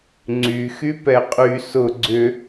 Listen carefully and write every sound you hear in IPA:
ŋ͡ǀy xypɛqʼy sʊ ɡ͡ǀʏ

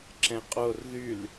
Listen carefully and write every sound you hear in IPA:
ǁɛ̃qʼor ðyl

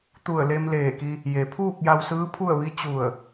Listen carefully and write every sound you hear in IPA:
t̪u˧˩ə̯le˧mleː˧˩ki˧ | je˩pʰuː˥˨k̚ ja˧wsɯː˧˥pʰu˥˨ə̯ʋi˧˥ t͡ɕu˧˩ə̯

